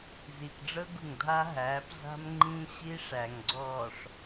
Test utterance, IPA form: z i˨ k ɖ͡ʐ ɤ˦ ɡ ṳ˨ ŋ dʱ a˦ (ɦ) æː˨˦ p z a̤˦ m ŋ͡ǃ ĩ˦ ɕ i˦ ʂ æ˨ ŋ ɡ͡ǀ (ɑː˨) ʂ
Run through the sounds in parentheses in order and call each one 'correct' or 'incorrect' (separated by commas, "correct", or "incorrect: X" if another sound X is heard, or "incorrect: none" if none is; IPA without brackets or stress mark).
correct, incorrect: ɔː˨